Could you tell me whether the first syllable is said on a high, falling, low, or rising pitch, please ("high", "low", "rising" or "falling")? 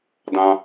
high